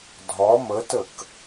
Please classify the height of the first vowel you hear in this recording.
low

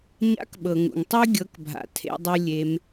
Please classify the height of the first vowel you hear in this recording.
low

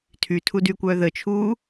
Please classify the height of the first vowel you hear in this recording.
high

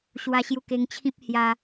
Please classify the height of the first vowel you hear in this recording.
low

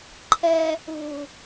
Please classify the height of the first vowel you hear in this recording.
mid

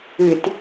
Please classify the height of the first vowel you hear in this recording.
high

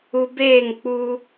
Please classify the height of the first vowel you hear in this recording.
high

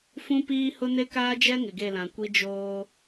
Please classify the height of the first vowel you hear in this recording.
high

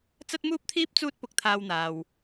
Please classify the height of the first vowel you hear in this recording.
low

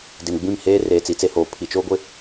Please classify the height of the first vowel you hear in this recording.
high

